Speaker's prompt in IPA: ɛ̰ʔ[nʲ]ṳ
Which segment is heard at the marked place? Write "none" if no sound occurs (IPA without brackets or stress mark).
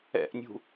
nʲ